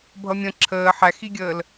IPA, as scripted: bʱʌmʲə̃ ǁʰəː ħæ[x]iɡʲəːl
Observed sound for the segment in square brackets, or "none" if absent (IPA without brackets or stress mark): x